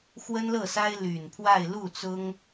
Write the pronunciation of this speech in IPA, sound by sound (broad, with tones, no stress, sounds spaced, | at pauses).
x w ə˥ n l ɤ˥˩ s a˥ ɪ̯ l y˨˩ n pʰ w a˥˧ ɪ̯ l u˥˩ t͡s ʊ˥ ŋ